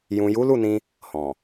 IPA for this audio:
j ũ˨ j u˨˦ l u˦˨ n ĩ˧ | h ɔ̃˨

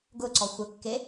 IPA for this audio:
ɡ ʊ ǀ ɔ xʷ ə kː e

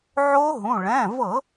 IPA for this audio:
ʕ o˦˥ ɦ ũ˩˧˩ ɭ ɛ̃˩˧˩ v ɤ˧˩˧

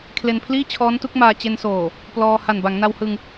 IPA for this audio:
kʰ l e˧ n pʰ l iː˥˩ t͡ɕʰ ɔː˦˥ n t u˦˥ k̚ m aː˧ t͡ɕ e˧ n s oː˨˩ | p l ɔː˧ h a˨˩ n b a˩˦ ŋ n a˧ w h ɯ˧ ŋ

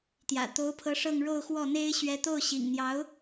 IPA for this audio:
t̪ j ä̰˨˩ t̪ o˧˥ ʊ̯ pʰ ɤ˧˥ ʂ ɤ˥˧ ŋ ɻ o˥˧ ʊ̯ x w ɔ˥˩ n̪ e˥ ɪ̯ ɕ ɥ ɛ˥ t̪ o˥˩ ʊ̯ ɕ ḭ˨˩ ŋ n̪ j ɑ˧˥ ʊ̯

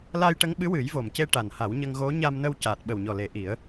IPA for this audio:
l a˧ j ʈ ə˧˥ ŋ ɓ ɨ˧˥ w ɨ˨˩˦ j v o˨˩ m c e˧ ʈ a˨˩ n h a˨˩˦ w ɲ ə˧ ŋ ɣ o˧˥ ɲ a˧ m n ə˧ w c aː˨˩ t̚ ɓ ə˨˩ w ɲ ɔ˨˩ l e˨˩˦ ʔ i˨˩˦ ə̯

